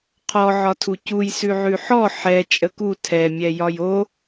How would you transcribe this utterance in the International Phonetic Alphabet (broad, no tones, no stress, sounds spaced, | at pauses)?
qʰ ɔ ʕ ɒ tʰ u c u j s ʉ ʕ ʉ ħ ɔ ħ ɛ t͡ʃʼ ə k u tʰ ɛ mʲ ɛ j ɒ j o